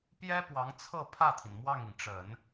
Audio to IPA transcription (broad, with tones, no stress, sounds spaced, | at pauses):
p j ɛ˥ p w ɑ˧˥ ŋ t͡sʰ ɤ˥˧ pʰ ä˥˩ t̪ʰ i˩ n m w ɑ˥˩ ŋ i˩ ŋ ʈ͡ʂ ə˨˩˦ n